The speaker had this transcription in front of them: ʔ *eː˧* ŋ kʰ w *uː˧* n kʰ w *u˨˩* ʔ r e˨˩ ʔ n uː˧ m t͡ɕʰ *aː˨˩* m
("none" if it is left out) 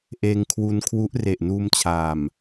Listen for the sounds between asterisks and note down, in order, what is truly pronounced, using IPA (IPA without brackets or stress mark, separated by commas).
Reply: eː˧, u˧, u˦˥, aː˨˩